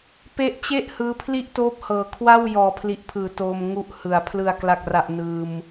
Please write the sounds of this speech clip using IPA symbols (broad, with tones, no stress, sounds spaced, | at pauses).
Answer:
p e˦˥ ʔ t͡ɕ e˥˩ ʔ h ɯː˧ pʰ l i˥˩ ʔ t oː˦˥ p̚ h ɤː˨˩ kʰ w a˥˩ w j ɔː˨˩ pʰ l i˨˩ ʔ pʰ ɯː˩˦ t oː˧ m ŋ u˦˥ ʔ h ɯ˨˩ a̯ pʰ l ɯ˨˩ a̯ k l a˨˩ k̚ r a˨˩ ʔ n ɯː˧ m